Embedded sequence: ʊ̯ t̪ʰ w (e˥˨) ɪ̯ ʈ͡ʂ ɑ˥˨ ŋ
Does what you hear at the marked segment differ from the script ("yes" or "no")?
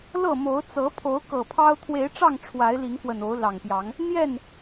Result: yes